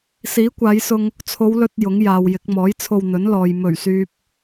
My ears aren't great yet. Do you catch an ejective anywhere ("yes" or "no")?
no